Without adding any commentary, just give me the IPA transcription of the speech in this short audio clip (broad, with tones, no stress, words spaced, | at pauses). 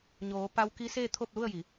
ɲoː˩˧pa˧wki˧˥ seː˥˨t̪ʰo˥˨p̚lu˥˨ə̯ji˩˧